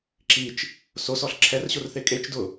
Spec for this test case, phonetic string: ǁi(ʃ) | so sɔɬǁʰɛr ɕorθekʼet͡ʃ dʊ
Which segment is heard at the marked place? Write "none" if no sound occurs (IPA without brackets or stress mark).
t͡ʃ